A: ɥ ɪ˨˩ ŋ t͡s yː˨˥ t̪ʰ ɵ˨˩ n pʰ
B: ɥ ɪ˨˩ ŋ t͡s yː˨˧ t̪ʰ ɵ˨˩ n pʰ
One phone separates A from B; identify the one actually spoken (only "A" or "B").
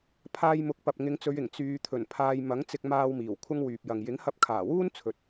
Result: B